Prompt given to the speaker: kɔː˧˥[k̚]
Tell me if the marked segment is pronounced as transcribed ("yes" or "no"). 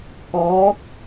yes